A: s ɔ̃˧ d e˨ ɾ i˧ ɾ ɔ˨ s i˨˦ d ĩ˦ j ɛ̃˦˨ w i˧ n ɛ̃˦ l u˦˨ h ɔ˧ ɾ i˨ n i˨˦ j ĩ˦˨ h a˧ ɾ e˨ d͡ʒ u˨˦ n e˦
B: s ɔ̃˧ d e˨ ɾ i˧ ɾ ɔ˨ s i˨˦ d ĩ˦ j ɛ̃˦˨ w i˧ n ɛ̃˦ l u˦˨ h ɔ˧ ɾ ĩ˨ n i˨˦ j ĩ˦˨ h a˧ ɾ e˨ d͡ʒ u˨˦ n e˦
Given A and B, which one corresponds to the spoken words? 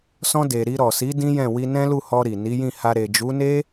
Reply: A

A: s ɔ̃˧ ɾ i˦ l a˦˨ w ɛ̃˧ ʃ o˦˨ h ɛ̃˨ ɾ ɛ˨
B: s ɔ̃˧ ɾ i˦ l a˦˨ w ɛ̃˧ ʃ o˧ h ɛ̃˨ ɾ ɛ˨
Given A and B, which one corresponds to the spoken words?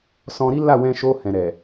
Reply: B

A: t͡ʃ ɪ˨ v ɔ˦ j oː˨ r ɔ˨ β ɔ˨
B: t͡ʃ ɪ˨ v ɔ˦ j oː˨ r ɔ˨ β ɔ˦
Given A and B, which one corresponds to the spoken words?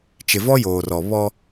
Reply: B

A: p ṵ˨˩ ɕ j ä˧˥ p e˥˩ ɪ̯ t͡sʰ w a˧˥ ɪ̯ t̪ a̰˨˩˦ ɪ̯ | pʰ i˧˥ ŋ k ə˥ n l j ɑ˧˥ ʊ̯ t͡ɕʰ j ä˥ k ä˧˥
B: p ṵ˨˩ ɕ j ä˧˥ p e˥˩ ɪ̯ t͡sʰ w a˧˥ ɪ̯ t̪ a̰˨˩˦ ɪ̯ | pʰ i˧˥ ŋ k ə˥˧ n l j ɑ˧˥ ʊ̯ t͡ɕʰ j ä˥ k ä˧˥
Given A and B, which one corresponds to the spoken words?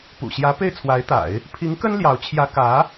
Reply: A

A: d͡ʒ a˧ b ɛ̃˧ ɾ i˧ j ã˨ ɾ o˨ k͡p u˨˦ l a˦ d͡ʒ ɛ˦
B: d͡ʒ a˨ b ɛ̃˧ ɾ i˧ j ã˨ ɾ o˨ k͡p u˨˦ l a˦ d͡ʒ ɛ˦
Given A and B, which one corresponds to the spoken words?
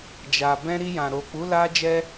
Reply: B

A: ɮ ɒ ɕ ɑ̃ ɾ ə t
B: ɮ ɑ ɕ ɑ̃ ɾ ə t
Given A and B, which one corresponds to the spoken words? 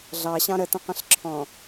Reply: B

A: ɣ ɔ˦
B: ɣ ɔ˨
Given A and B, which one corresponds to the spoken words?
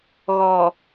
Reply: B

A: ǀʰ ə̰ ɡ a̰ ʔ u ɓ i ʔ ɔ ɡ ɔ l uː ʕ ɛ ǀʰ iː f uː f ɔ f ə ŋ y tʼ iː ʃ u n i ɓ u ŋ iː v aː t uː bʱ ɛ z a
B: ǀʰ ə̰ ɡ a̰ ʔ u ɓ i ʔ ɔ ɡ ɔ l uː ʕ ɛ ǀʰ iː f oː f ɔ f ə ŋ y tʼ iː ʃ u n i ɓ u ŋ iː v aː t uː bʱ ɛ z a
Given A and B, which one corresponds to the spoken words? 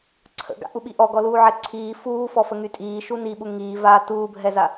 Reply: A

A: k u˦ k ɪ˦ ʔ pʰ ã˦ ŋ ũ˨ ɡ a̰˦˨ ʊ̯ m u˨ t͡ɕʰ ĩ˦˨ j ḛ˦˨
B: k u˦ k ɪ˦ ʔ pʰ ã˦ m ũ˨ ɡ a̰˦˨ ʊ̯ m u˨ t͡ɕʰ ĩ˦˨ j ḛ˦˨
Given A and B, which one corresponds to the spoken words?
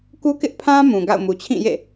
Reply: B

